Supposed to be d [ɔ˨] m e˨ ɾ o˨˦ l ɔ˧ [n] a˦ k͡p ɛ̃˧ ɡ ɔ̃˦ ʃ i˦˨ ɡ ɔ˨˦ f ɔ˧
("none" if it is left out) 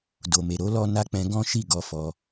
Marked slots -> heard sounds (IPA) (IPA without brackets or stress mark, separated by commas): o˨, n